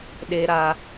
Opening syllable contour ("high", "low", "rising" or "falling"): low